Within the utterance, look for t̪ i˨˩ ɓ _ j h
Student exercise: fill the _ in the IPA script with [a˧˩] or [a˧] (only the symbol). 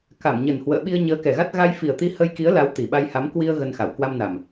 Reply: a˧